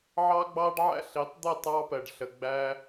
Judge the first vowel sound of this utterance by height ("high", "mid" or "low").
low